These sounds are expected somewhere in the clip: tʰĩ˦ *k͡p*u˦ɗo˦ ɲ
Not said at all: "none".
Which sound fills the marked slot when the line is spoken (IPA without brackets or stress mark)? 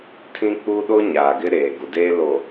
k͡p